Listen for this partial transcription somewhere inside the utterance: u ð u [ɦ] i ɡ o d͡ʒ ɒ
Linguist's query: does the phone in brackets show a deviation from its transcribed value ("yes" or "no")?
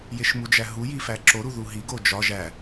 no